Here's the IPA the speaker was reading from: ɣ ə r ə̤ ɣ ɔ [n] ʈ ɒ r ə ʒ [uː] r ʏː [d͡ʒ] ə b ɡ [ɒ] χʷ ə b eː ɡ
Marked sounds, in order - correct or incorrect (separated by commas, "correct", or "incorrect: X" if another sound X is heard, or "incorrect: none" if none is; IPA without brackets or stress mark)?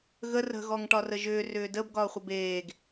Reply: incorrect: ŋ, incorrect: ʏː, incorrect: d, incorrect: ɒː